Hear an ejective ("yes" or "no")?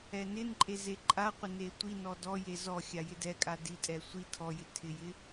yes